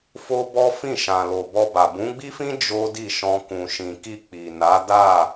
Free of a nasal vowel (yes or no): no